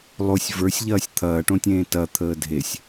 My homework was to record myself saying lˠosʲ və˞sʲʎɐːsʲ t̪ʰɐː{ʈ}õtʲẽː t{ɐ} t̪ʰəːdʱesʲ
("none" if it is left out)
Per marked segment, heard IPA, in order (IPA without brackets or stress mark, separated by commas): ʈ, ɐ